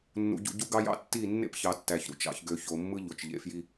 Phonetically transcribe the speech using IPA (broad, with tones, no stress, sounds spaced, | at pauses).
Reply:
nː ṵ˨ ɟ ṵ˨ ɟ u˦ ɡ ɑ˦ j ɑ̰˦ tː i˦˨ nː ḛ˦ p ç ɑ˨ tː æ˨ ç ɾ ṵ˦˨ t͡ʃ ɑ̰˨ ç ɡ ø˨ ç o˨ mː ɯ˦ ʎ o˨ t͡ʃ ʎ ḛ˨ f j i˦